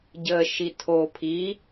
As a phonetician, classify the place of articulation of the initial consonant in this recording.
palatal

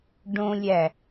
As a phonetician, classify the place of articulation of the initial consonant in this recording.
retroflex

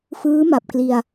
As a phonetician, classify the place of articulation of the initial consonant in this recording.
labial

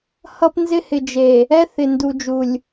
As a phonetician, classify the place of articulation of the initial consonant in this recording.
glottal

